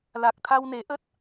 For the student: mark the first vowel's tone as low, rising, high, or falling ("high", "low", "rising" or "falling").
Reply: low